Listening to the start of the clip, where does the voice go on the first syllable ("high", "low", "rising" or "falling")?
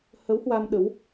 rising